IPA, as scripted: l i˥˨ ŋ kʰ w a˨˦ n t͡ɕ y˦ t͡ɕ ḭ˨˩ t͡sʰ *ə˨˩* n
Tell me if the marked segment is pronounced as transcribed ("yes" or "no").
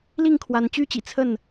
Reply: no